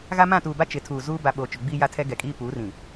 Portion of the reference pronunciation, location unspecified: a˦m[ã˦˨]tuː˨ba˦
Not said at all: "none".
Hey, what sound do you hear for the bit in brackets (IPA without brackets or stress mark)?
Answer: ã˦˨